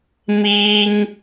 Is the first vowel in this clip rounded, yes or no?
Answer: no